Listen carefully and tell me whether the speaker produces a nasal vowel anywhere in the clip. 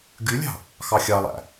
no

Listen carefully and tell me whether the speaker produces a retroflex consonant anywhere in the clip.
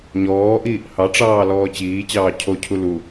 yes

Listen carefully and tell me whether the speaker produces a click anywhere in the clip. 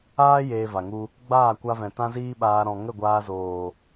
no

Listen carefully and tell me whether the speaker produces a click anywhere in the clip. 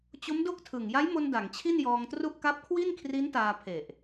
no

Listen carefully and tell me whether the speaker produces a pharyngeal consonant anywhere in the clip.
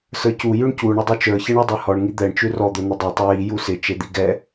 no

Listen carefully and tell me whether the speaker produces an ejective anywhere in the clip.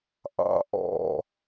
no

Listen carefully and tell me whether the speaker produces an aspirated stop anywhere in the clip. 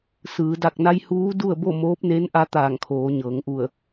yes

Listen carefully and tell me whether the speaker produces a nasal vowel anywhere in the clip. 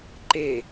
no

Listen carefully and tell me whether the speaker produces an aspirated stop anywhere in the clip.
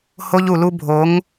no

